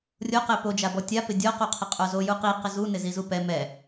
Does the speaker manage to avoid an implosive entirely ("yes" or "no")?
yes